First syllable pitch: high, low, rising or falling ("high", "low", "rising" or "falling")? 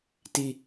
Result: low